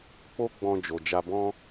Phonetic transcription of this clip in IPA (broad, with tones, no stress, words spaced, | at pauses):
k͡po˦ɡ͡bɔ̃˧d͡ʒo˨ d͡ʒa˧bɔ̃˦